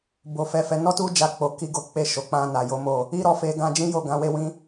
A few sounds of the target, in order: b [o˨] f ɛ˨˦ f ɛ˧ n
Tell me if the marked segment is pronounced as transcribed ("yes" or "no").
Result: yes